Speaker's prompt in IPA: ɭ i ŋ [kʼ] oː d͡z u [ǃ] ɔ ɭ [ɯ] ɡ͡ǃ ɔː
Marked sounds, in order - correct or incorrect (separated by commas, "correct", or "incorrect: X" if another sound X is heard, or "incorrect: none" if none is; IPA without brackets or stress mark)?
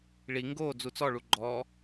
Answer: incorrect: ɡ, incorrect: t͡s, incorrect: u